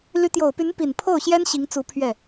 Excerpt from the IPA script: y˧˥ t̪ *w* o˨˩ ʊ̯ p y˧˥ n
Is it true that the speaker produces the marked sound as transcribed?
no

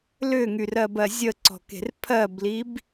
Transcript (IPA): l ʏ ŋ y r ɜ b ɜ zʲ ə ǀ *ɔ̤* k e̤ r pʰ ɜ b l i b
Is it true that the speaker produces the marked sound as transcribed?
yes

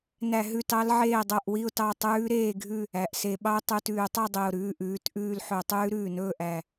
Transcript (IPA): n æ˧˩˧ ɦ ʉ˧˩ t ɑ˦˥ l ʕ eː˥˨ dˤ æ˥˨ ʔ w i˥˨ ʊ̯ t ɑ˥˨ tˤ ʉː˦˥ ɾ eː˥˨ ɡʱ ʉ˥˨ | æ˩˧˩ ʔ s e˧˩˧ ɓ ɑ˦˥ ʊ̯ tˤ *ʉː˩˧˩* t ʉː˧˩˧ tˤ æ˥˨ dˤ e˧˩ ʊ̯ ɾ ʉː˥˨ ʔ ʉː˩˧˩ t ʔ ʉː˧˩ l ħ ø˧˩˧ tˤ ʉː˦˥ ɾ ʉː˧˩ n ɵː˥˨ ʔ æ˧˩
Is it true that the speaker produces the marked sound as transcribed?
no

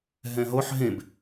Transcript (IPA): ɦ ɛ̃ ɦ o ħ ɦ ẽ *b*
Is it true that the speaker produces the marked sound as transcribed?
yes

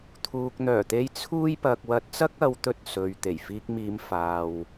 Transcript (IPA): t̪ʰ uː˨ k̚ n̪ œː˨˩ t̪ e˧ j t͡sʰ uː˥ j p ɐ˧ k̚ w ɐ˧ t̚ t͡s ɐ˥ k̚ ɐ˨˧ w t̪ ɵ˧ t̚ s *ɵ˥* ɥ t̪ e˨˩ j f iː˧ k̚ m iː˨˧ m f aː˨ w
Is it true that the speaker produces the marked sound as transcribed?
no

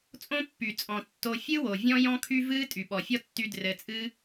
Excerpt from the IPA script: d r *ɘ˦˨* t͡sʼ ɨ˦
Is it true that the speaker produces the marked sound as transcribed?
no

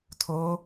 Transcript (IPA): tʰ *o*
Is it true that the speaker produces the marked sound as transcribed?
yes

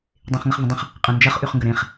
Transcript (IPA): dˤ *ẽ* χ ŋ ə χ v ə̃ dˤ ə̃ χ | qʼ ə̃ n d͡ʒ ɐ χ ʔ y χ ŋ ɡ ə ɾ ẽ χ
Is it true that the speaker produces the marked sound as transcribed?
yes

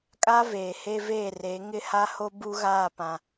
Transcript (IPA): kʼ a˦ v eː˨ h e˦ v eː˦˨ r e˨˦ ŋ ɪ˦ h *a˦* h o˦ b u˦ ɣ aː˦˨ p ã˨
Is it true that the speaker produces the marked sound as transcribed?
yes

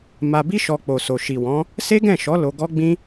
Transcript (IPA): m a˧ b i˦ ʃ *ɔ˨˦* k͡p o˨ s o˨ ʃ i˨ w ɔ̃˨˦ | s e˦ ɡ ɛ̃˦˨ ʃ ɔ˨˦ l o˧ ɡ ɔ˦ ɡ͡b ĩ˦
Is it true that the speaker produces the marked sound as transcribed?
no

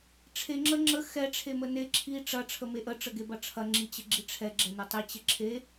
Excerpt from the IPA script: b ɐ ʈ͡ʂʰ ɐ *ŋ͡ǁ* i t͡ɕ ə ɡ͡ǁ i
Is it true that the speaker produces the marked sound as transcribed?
yes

